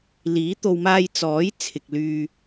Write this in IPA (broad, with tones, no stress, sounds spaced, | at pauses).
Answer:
l iː˨˥ t̪ o˨ w m aː˧ j t͡s ɔː˨˥ j t͡sʰ ɪ˨ k̚ l yː˧